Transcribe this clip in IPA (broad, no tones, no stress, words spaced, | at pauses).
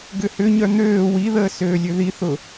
ɡʏhʏɲœ n̪øː wiðəː søːlʲøðiθʊ